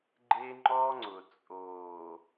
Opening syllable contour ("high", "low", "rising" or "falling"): high